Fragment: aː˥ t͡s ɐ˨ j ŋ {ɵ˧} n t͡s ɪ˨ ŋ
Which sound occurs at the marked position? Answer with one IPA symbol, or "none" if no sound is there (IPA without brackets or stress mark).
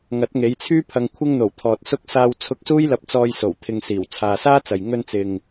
ɵ˧